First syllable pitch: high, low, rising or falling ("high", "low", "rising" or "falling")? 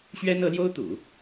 high